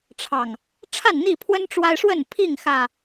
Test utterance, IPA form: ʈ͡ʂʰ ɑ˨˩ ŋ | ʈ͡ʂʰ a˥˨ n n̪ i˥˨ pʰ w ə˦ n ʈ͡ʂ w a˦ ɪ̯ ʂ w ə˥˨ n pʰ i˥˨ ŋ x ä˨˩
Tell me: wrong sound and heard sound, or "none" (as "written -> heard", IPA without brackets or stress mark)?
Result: none